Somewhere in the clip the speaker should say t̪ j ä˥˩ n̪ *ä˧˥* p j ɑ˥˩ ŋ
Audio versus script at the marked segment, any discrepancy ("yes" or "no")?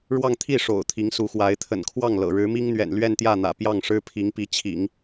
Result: yes